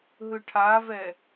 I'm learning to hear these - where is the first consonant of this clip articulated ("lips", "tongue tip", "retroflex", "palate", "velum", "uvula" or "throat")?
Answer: throat